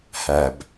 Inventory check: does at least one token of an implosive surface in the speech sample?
no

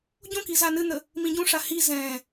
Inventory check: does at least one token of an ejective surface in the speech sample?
no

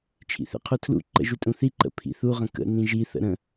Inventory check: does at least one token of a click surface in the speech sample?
yes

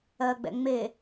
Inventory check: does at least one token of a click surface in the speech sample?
no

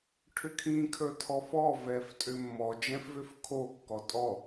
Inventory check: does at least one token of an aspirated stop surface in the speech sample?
yes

